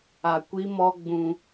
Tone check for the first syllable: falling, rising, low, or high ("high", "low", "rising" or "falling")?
low